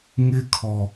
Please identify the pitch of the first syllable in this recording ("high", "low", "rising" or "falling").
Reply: high